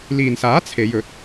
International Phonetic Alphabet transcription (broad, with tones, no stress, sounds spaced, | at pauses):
l iː˨ n s aː˨˥ t͡sʰ e˨˧ j ɵ˨˥ t̚